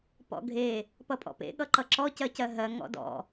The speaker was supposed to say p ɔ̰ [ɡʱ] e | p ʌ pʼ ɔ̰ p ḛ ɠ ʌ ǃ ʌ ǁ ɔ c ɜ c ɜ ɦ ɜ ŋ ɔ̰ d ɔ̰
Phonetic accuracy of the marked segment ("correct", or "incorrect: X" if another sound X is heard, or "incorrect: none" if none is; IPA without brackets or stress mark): correct